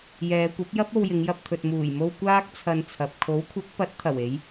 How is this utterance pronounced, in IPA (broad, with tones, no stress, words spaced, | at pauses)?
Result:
jɛː˨˧kʷɐ˨˥p̚jɐ˥p̚ o˧wjɪ˨˧ŋjɐ˧p̚t̪ʰɵ˨t̚ muː˨˩jmo˧w kʷaː˥k̚t͡sʰɐ˧nt͡sʰɐ˨p̚ kʰo˨˥wkʷʰɐ˨˥k̚pɐ˨˥t̚ t̪ʰɐ˨˩we˨˧j